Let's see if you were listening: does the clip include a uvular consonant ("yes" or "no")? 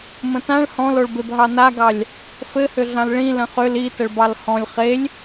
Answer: yes